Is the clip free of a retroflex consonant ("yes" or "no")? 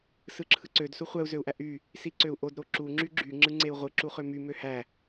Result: yes